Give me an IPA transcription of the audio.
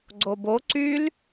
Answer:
ɡ͡ǀobo ǀyl

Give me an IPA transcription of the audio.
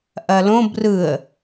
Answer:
ʔɐlõ brɯə̯

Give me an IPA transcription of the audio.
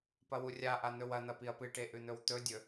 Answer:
pɐwurʲaʔa n̪ɵwɐn̪ɐ piɐ̯pɨʈe ʔʉn̪ɵwt̪ɵdʲɵ

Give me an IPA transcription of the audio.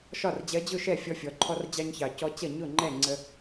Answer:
ʃɒ˥˩rd͡ʑɜ˧˥ d͡ʑʊ˥˩ʃɛ˥˩fʲɔ˧ fʲɔ˩˧ǃʰɔ˧rd͡ʑɑ˧ɲçɑ˨˩ cɔ˧˥t͡ɕʌ˥˩ ɲʊ˥˩ŋ͡ǃɛ˥˩ŋ͡ǀə˧

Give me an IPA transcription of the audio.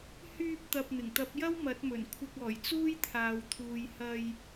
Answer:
hyː˧p̚t̪ɐ˨p̚ n̪ɪ˨˩ŋt̪ɐ˨˥p̚jɐ˥w mɐ˨˥t̚mɵ˨˩nkʷʰɪ˧k̚ ɔː˨˩jt͡suː˥jt̪ʰaː˨wt̪ʰuː˨j hɐ˨j

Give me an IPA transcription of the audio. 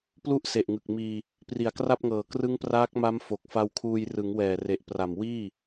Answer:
plu˥˩ʔse˨˩ʔŋɯ˨˩k̚miː˧ | pri˨˩a̯kra˥˩p̚ŋɤː˨˩ krɯ˦˥ŋpraː˦˥k̚ma˦˥m fo˨˩k̚fa˧wkʰuː˧j rɯ˩˦ŋwɛː˨˩re˨˩ʔ pra˨˩m wiː˥˩

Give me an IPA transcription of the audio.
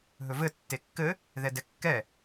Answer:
ɦɵvɘ tːekːɘ | ðɛdɛkːɛ

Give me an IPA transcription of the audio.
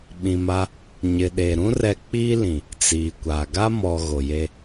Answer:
ɓĩ˨ma˦ | ɲɪ˨ɗe˨ ɾũ˦ rɛ˦ k͡piː˦lĩ˨ | t͡siː˨kʷa˨ ɡa˦mɔ˨ ɣo˨je˦

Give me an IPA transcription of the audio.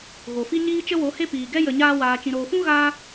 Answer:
ɣo˨fi˦ ɲiː˦t͡ʃə˦wo˨˦he˦ piː˨ɡɛ˦ jə˨ɲaː˧waː˨ t͡ʃĩ˨ɾoː˨fũ˦ ɣaː˦

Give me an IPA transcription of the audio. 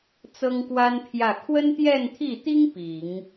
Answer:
t͡sɤ˥ŋkwa˥npʰjä˥˩ kʰwə˥nt̪jɛ˥˧nt̪ʰi˥˩t̪i˥ŋ pi˨˩˦ŋ

